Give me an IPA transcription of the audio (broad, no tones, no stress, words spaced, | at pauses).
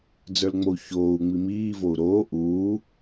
d͡zə˞lŋ͡mou̯çoːu̯ŋ͡mi miːvou̯ ɾoː ʔuː